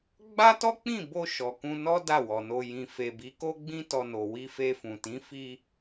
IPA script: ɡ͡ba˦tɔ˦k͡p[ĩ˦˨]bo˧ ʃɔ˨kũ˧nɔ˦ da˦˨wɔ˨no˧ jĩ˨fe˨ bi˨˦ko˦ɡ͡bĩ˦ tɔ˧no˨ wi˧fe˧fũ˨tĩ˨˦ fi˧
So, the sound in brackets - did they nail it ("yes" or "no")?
yes